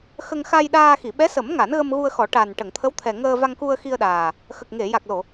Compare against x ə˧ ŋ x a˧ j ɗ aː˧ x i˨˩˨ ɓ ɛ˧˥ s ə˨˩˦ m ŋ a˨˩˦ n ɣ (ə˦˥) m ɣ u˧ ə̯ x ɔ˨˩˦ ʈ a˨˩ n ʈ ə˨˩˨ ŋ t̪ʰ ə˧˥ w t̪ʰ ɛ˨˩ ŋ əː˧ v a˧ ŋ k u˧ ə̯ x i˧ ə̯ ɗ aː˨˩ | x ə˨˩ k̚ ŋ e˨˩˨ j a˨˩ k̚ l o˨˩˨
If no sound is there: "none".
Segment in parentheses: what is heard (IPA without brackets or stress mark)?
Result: ə˧